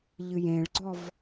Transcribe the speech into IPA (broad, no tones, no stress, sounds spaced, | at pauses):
ʎ ɨ j ẽ ɭ ɡ͡ǀ ɔ v